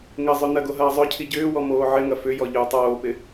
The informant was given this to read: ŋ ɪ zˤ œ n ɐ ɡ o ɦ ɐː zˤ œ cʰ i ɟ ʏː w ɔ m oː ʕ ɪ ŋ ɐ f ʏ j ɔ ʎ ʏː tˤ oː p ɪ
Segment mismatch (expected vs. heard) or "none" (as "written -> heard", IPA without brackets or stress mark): none